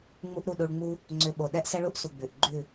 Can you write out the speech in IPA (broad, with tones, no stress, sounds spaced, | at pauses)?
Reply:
ŋ͡m u˦ ʔ ɾ u˦˨ ɗ u˧ ɭ ŋ͡m u˦ | ŋ͡ǀ ʏ˧ ɓ o˨ ɗ ɛ˦ ʔ s ɛ˦ ɭ u˦ ʔ s u˨ ɡ͡b ʉ˨ ʔ ɡ͡ǃ ʉ˦˨